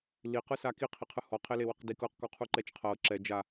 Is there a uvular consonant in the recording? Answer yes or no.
yes